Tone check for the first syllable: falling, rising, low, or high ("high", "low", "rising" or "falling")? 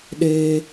high